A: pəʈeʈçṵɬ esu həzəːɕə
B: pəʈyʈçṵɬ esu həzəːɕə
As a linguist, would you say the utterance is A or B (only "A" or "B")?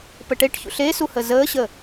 A